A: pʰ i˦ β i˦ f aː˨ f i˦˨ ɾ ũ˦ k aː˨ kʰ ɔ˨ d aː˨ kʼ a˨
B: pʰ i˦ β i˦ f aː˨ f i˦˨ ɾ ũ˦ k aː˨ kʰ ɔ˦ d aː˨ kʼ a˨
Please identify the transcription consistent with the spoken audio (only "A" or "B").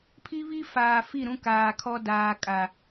B